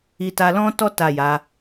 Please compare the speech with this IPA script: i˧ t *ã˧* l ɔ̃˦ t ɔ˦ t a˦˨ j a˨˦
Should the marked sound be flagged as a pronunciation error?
yes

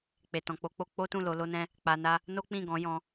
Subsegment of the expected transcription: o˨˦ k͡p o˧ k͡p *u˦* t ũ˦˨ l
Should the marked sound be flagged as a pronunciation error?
yes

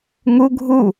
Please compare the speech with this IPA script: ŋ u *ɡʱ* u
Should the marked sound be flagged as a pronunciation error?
no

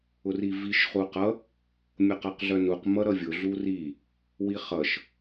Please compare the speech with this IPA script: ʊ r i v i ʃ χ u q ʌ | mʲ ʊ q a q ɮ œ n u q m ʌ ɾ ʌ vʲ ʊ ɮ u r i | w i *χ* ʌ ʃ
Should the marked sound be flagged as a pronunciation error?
no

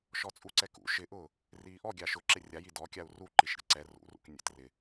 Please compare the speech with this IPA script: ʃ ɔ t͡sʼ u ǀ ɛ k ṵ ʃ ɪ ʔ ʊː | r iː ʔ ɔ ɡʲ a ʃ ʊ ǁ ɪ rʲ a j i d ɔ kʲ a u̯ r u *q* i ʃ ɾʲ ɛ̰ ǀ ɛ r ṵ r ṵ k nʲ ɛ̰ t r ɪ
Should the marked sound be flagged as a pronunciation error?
yes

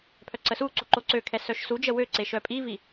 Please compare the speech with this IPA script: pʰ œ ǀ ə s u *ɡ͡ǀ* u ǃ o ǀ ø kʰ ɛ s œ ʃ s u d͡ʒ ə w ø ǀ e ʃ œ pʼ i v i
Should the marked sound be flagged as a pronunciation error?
yes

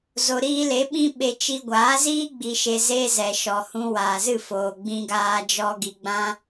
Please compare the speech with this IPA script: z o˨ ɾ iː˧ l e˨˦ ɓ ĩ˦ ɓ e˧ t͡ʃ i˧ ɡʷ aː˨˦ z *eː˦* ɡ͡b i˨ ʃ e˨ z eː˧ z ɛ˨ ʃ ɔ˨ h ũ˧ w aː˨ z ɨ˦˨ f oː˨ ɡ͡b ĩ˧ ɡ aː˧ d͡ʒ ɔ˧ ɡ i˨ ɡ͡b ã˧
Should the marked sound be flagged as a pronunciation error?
yes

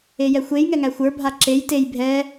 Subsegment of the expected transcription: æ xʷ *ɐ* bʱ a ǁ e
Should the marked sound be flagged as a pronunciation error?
yes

